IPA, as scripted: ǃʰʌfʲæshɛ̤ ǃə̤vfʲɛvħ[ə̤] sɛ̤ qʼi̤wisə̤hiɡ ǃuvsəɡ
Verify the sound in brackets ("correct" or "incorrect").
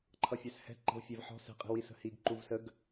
incorrect